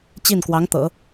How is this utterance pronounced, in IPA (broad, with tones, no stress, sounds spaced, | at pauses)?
t͡ɕ i˥˩ n k w ɑ˧˥ ŋ t̪ ɤ̰˨˩˦